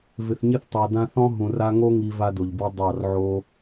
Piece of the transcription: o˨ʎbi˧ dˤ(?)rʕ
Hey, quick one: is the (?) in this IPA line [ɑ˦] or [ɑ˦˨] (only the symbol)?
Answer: ɑ˦˨